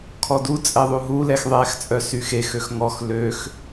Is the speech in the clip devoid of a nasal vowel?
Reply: yes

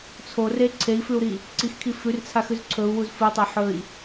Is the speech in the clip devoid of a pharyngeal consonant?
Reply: no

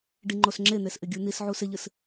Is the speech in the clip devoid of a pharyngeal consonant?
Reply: no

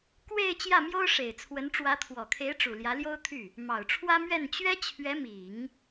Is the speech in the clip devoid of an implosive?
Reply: yes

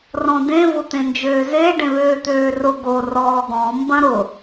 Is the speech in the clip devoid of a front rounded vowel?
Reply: no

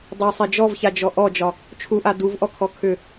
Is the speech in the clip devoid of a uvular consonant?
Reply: yes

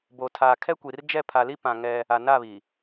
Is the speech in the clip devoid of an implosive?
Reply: yes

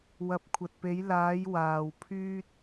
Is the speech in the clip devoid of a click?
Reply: yes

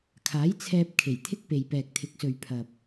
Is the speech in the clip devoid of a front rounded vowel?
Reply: yes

